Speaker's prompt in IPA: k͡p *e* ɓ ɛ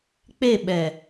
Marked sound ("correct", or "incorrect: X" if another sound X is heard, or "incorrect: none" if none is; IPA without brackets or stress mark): correct